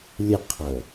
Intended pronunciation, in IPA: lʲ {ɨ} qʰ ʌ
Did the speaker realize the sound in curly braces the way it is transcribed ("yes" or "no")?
no